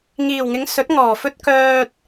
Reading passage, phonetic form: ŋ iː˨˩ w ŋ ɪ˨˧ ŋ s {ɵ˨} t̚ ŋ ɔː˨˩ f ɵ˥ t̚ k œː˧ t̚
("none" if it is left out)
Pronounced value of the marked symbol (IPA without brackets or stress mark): ɵ˨˥